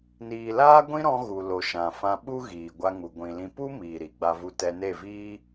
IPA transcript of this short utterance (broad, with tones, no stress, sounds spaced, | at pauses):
n iː˨ l aː˦ ɡʷ ĩ˦ ɾ ɔ̃˧ ɣ u˨ l o˨ ʃ ã˨ f ã˧ ɓ u˦ ɣ iː˨ ɡʷ a˧ ŋ u˨ ɡʷ ĩ˨ l ĩ˧ p u˦ m iː˨ ɾ i˨ ɡ͡b a˧ v u˧ t ɛ˧ n e˦˨ v iː˦